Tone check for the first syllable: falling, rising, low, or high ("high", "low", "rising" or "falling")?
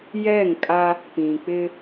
falling